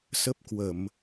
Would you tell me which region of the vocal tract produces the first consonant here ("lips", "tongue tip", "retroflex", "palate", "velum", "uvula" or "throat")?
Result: tongue tip